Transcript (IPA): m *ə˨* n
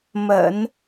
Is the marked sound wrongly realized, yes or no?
yes